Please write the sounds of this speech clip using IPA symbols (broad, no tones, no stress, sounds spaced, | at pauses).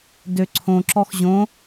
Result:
d ø ǀʰ õ ǁ ɔ x ʑ õ